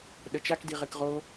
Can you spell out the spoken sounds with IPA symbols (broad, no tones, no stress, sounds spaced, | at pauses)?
ɗ ə t͡ʃ a k d i ʁ e k ʁ o